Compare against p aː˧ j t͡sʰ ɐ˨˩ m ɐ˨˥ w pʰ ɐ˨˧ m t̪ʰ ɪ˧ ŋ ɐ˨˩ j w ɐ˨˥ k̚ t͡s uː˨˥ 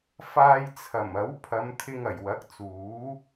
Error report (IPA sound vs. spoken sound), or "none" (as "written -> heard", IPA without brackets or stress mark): p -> f